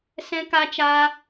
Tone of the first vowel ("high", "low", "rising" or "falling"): high